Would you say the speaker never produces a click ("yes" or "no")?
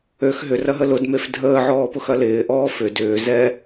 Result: yes